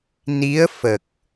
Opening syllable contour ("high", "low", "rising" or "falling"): rising